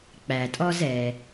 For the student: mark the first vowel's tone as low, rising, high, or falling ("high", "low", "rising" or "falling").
low